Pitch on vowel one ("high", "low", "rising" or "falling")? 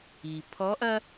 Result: low